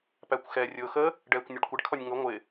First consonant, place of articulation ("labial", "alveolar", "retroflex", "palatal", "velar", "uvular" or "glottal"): labial